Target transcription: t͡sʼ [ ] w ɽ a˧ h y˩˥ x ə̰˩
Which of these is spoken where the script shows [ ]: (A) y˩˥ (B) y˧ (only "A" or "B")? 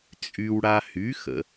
B